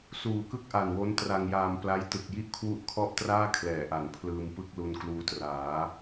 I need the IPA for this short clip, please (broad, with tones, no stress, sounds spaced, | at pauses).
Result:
s uː˨˩ k ɯ˥˩ k̚ ʔ a˨˩ n w o˦˥ n t r a˧ ŋ j aː˧ m p l a˦˥ j t ɯ˨˩ k̚ j i˥˩ ʔ kʰ w u˥˩ ʔ kʰ ɔ˥˩ ʔ t r aː˥˩ kʰ l ɛː˩˦ ʔ a˩˦ n pʰ l ɯː˧ m p ɯ˥˩ k̚ l u˧ n k l uː˦˥ t r aː˩˦